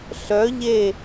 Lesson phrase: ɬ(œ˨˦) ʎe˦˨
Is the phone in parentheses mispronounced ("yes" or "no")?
no